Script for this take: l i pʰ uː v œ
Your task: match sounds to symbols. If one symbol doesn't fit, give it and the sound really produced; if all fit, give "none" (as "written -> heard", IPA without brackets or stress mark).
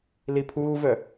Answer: none